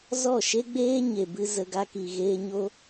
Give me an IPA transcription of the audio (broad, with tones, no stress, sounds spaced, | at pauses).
z ɔ˦˨ ʃ e˦ ɡ͡b eː˦ ɲ e˨ b ɨ˧ z ə˧ ɡ a˧ k i˨ ɣ eː˧ ɲ o˦